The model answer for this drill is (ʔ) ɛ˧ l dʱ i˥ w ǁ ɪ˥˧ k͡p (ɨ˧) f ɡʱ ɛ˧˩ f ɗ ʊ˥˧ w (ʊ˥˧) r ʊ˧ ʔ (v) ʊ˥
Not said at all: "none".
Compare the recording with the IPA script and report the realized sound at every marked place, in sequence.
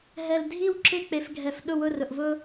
ɦ, e˧, ʊ˥˧, v

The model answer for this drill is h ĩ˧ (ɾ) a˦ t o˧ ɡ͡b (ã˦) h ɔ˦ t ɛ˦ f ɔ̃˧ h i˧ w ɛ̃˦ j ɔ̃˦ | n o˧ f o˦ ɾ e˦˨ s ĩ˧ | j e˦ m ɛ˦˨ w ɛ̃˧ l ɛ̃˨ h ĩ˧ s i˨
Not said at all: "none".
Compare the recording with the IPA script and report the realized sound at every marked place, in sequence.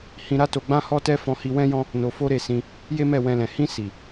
ɾ, ã˦

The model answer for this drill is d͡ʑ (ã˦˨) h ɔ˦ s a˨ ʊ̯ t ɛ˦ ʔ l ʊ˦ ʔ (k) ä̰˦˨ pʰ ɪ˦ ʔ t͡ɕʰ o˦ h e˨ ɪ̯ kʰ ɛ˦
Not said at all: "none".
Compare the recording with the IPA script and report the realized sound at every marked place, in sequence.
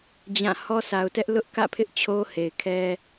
ã˦˨, k

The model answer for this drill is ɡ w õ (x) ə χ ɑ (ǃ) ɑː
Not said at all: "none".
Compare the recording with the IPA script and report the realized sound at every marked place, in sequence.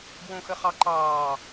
x, ǃ

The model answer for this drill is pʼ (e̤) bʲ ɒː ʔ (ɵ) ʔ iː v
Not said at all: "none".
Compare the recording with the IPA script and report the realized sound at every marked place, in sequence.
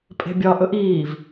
e̤, ɵ

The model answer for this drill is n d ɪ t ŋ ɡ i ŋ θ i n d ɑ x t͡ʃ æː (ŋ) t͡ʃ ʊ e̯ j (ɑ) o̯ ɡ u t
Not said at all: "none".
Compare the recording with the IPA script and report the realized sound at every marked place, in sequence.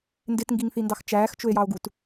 x, ɑ

